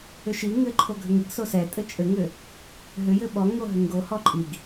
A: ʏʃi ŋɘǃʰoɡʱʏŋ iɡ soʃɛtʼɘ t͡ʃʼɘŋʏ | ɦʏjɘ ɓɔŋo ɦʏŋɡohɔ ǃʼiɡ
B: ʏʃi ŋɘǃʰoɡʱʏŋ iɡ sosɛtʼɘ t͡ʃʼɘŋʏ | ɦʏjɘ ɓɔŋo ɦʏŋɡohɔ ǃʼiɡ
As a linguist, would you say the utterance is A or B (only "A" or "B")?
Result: B